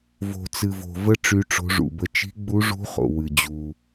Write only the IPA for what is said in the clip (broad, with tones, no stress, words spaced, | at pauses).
vo̤˨t͡sɨ˨vo̤˨ və˦˥ ʈ͡ʂy˦˥ʈ͡ʂo̤˦˥ʐṵ˨bə˦˥ t͡ʃi̤˦˥ɡ͡bu˦˥ʐṳ˦˥ χo̰˨ wɨ˨d͡ʑu˨